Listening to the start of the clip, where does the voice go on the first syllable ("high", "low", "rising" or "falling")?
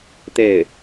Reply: falling